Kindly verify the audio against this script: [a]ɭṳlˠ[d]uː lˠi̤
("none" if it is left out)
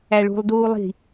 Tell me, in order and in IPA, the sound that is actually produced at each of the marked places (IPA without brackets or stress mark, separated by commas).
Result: æ, d